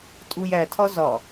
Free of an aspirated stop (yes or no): no